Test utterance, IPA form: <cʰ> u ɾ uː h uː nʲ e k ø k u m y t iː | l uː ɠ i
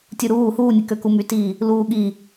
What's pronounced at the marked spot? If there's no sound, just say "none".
tʲ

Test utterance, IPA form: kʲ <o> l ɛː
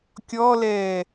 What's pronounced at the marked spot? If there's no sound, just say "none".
ɔ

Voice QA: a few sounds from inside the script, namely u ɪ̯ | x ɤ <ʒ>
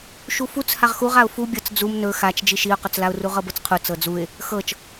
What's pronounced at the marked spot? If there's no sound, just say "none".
t͡ʃ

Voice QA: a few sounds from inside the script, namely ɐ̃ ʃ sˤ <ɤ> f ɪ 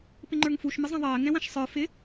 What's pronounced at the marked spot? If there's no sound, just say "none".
ə˞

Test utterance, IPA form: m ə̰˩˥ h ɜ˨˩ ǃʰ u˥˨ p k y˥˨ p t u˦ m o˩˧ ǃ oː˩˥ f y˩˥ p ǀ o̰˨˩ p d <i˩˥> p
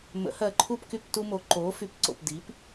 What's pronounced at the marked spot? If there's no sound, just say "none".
i˩˥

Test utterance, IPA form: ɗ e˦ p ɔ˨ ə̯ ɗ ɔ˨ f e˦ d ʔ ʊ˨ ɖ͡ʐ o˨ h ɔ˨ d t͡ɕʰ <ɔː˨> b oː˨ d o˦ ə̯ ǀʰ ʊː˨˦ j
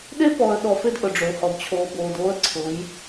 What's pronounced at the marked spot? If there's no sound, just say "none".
oː˨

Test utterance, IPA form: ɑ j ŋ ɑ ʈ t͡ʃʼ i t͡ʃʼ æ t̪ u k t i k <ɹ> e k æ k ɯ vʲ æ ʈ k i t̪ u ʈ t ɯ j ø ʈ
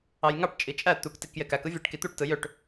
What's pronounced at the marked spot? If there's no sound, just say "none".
j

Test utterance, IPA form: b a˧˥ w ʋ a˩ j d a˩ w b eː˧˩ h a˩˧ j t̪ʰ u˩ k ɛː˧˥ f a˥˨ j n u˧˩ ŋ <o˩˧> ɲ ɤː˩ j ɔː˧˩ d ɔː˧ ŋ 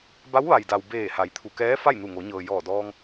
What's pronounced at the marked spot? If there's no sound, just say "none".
o˩˧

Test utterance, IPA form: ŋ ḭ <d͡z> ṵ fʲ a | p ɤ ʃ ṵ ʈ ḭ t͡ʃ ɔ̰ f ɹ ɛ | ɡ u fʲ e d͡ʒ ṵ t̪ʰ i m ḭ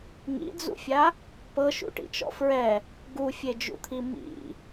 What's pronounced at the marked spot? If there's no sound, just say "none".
d͡z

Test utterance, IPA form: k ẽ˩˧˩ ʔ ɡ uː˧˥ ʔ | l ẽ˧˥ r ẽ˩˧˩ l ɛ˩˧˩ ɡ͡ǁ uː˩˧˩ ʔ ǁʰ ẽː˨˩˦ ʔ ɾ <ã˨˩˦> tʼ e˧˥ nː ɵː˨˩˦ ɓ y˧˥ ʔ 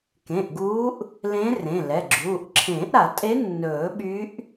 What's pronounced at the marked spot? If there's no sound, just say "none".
a˨˩˦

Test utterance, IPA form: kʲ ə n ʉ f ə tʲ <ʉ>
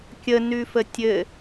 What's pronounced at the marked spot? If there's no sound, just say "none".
ɘ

